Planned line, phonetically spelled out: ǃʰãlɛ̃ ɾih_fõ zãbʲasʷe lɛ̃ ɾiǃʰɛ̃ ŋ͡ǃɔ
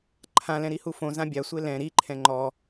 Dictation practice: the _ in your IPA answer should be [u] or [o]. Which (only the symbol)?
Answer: u